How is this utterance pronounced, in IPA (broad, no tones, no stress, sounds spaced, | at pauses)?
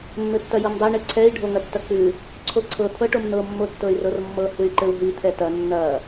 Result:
mː ɘ tː ɐ j ɤ m dˤ ɛ ɳ ɘ ǀʰ ɛ i̯ ɖʱ o ŋ ɐ tː ɐ k͡p ʉ | ǀʰ o ǀʰ ɤ t̪ʰ ɤ ʈ o m n̪ ɤ mː o tː ɤ y̯ r ɤ r mː ɤ h ʉ y̯ ǃ ɘ u̯ ɦ i t̪ʰ ɛ t ɐ nː ɐ